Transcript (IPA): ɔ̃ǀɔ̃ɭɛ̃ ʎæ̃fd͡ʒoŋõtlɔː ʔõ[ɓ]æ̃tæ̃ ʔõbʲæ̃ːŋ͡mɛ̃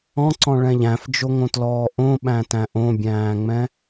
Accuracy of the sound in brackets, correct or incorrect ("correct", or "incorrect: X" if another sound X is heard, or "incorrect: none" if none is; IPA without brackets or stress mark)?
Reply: correct